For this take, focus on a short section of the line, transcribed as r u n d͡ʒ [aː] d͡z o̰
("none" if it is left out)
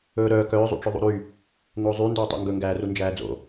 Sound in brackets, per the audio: æː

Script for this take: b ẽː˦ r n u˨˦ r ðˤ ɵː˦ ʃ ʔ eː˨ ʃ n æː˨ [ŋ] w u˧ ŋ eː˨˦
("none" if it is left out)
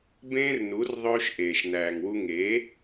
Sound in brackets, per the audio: ŋ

